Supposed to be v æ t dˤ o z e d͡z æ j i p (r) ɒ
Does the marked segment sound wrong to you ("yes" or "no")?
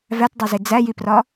no